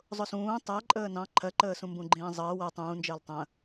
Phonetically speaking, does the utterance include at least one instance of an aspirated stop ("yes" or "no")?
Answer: yes